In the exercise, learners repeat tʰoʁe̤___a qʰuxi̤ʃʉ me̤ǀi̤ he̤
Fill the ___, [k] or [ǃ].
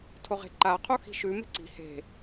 ǃ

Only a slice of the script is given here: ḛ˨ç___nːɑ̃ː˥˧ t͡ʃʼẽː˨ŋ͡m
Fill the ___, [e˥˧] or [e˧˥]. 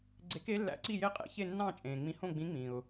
e˥˧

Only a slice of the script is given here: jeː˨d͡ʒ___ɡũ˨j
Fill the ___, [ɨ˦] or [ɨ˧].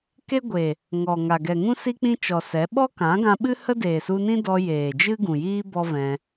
ɨ˦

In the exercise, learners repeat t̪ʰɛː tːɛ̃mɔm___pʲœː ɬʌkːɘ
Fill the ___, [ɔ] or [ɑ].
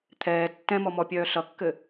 ɔ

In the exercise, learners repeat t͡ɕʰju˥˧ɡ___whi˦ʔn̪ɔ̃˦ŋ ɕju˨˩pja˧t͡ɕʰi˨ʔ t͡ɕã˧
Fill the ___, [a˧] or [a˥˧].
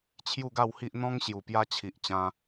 a˥˧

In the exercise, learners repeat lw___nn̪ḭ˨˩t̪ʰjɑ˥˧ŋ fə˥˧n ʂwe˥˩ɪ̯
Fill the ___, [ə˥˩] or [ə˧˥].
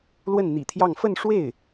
ə˥˩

